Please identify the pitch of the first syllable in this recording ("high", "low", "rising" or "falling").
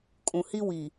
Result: low